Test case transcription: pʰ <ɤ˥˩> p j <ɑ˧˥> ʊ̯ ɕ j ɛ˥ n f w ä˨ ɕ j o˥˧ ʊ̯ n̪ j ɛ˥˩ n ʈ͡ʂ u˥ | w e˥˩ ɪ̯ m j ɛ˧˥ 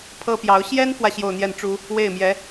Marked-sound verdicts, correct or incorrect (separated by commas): incorrect, correct